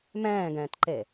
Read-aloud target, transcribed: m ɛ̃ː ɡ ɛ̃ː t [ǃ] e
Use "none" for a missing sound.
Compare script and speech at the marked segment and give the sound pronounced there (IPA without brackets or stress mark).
ǃ